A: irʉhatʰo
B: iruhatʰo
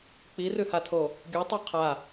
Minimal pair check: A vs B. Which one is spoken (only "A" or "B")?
A